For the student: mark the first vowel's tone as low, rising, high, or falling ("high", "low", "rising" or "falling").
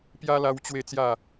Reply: high